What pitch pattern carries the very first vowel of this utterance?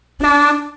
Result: high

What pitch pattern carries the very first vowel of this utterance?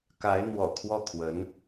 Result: rising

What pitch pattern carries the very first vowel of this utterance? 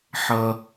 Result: high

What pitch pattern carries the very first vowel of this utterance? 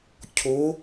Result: rising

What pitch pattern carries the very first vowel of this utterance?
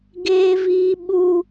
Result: high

